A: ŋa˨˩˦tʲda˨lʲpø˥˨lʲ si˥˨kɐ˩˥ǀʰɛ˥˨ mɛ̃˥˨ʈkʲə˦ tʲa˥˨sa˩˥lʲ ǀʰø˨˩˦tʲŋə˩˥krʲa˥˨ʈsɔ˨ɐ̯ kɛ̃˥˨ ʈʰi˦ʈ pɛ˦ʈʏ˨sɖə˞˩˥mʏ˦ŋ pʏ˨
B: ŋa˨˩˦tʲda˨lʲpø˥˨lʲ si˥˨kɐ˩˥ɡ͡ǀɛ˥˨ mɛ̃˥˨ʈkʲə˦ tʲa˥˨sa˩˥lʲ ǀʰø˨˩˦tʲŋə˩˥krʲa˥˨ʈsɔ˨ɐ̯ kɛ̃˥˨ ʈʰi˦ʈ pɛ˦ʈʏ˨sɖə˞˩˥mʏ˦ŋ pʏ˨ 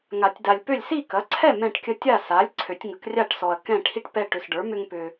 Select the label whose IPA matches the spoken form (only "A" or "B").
A